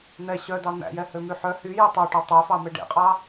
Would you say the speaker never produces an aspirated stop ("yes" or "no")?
yes